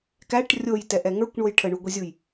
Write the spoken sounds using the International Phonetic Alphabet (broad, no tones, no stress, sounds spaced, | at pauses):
k æ ʈ rʲ o j t ɛ ʔ ɛ ŋ ə˞ kʷ ɳ o j ʈʰ ə ɳ u ɡʷ i zʲ u j